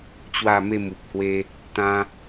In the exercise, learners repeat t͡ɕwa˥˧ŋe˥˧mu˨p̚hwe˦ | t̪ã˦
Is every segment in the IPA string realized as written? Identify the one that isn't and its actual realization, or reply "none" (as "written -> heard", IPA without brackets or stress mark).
ŋ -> m